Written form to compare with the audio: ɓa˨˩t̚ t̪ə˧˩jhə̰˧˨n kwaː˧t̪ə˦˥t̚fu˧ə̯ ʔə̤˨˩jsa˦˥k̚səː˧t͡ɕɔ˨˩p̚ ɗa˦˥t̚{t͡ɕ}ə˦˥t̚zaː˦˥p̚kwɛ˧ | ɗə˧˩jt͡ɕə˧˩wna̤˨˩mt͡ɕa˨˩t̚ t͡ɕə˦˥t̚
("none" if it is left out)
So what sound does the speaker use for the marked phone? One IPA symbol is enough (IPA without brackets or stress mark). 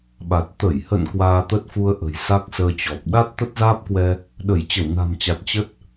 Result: t̪